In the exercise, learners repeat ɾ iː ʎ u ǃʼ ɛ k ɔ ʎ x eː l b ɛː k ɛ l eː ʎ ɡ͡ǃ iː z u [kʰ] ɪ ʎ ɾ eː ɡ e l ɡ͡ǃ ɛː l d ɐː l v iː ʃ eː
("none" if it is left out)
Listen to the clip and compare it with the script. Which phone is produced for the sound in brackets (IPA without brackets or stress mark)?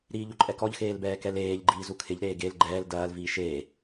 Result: kʰ